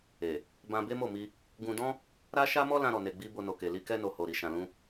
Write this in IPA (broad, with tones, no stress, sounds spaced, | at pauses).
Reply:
e˨ | b ã˧ b e˦ m o˦˨ m i˧ | ɡ ũ˧ d ɔ̃˦ | ɾ a˦ ʃ a˦ m ɔ˦ l ã˧ ɾ ɔ˨ n e˨ ɡ͡b i˧ b o˧ n o˨ k e˨ l i˧ k ɛ˧ n o˨ h o˨ ɾ i˨ ʃ ã˨ l ũ˧